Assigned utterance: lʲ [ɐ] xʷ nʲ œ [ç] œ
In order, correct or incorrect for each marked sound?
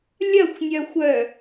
correct, incorrect

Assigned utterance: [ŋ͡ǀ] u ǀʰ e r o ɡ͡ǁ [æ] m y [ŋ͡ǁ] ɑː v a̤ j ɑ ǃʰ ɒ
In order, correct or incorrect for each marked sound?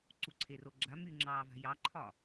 incorrect, incorrect, correct

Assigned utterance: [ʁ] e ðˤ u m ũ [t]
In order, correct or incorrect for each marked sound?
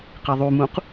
incorrect, incorrect

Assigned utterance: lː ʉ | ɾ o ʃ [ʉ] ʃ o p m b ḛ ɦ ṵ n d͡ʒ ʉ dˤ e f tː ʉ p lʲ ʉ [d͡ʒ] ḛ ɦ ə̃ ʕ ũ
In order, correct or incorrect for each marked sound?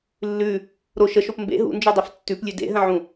incorrect, incorrect

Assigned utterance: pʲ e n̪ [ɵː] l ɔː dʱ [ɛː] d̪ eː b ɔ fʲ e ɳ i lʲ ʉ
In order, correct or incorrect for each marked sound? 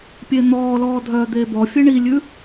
incorrect, incorrect

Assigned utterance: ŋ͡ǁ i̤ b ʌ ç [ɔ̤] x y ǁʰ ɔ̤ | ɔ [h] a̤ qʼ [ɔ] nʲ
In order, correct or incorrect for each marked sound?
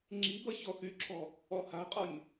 incorrect, correct, correct

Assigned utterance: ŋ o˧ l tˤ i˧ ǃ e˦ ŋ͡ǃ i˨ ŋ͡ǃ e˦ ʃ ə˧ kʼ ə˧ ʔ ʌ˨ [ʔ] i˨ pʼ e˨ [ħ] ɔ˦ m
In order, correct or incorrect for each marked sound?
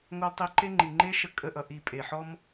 correct, correct

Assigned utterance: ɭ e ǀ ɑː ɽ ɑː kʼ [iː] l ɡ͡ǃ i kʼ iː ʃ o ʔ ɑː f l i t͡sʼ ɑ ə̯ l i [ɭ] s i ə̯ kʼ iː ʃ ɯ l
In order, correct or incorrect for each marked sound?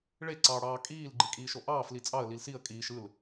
correct, incorrect

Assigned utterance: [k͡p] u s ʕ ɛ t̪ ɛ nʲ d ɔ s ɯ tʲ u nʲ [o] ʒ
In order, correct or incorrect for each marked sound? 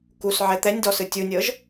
incorrect, incorrect

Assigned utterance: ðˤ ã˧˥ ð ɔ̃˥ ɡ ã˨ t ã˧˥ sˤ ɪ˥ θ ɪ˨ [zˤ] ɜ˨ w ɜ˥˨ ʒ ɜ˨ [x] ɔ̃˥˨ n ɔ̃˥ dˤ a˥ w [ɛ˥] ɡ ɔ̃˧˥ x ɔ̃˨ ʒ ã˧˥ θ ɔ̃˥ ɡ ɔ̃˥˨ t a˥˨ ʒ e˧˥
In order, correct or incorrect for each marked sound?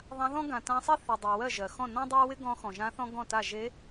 incorrect, correct, incorrect

